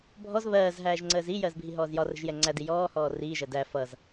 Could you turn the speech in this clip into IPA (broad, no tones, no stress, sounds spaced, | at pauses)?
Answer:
bʱ ɔ z β ɜː z ɦ æː ʒ ŋ͡ǀ əː z i j ɜ z bʱ i ɦ ɔː z j ɒ r ə̤ ʒ j ɛ ŋ͡ǀ æ d i j ɔː h ɔː r iː ʒ ɜ d æ f ʌ z